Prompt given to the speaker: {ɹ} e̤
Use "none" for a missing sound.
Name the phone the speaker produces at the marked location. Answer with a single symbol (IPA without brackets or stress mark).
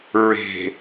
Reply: ɹ